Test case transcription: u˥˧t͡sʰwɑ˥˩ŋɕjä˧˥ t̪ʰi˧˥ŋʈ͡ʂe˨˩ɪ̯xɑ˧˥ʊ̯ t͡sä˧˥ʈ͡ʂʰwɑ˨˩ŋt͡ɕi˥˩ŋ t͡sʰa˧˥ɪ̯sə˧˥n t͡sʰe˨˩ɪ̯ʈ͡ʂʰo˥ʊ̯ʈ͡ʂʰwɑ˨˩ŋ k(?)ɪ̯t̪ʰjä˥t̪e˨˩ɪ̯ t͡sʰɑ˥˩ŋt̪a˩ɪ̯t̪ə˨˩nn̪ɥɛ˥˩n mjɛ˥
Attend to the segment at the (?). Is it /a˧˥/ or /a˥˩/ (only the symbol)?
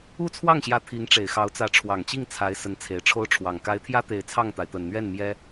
a˧˥